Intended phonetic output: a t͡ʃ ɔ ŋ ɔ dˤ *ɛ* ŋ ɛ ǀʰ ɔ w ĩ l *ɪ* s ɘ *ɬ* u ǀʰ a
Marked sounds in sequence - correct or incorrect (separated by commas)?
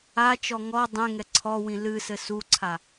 incorrect, incorrect, incorrect